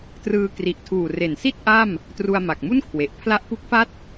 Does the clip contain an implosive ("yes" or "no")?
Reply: no